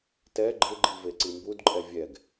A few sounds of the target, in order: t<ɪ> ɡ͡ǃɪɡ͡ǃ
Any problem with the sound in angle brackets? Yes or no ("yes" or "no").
yes